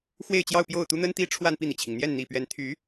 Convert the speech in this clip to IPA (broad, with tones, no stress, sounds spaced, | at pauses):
x w e˥˧ ɪ̯ t͡ɕ j ɑ˥˧ ʊ̯ p j o˥˩ ʊ̯ t̪ u˥ n̪ ə˥ n t̪ i˥ ʈ͡ʂʰ w a˥˧ n p i˥˩ n̪ i˩ t͡ɕʰ i˩ ŋ n̪ j ɛ˥˩ n n̪ i˨˩ p ɥ ɛ˧˥ n t̪ʰ y˧˥